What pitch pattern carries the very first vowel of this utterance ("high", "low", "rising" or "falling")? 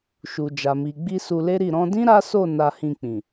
low